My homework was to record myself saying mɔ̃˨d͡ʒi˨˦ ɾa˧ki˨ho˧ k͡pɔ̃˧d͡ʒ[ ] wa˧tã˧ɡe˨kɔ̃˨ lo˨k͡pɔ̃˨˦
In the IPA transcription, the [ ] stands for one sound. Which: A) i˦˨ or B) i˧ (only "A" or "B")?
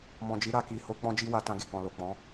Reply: B